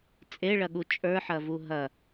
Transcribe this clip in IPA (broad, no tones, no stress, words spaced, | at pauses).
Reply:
t͡sʼeɭɐɠu t͡ʃʼə˞ħɐvu ɦɐ